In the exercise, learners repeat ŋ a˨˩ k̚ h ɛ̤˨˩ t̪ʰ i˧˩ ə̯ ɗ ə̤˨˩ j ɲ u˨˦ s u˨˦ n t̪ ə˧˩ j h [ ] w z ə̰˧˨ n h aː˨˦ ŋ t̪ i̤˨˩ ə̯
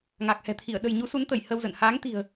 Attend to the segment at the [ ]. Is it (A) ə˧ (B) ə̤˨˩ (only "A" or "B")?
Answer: A